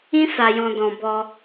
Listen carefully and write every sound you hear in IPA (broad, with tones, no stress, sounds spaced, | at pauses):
ĩ˦ s a˧ j ɔ̃˧ d ɔ̃˧ b ɔ˧